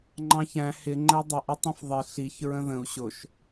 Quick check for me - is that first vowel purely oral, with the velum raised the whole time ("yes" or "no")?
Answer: no